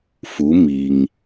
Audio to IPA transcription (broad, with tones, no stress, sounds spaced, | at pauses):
f u˩˧ m i˩ ŋ